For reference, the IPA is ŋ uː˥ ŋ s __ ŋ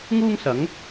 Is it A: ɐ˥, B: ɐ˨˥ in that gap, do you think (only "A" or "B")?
B